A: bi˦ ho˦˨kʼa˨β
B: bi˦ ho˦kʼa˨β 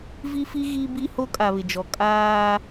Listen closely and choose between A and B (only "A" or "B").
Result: B